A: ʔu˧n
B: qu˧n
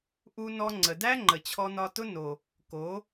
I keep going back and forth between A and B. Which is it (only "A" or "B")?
A